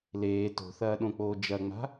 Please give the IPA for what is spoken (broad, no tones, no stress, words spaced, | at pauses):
leː to̤θɐːɗõk͡poː d͡ʒɐŋ͡ma̤